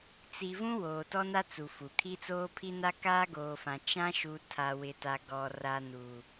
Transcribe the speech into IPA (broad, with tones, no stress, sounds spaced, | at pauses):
t͡s i˨ v ũ˦ w oː˨ t ɔ˦ n a˦ t͡s u˨ f u˨ kʰ i˦ t͡s oː˦ pʰ i˦ n a˦ k aː˦ ɡ oː˨ f ã˨ t͡ʃ ã˦ ʃ u˨ tʰ a˨ w ɪ˨ t a˨ ɡ ɔ˨ r a˨ n u˨